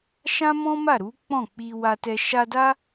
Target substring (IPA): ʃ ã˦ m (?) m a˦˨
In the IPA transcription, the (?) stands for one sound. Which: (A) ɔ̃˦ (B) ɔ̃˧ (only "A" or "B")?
A